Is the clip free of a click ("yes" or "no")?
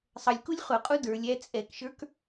yes